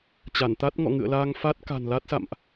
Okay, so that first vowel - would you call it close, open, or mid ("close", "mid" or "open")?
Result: open